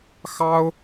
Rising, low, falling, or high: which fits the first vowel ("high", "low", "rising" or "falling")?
high